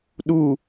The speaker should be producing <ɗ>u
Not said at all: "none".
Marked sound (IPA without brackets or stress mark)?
ɗ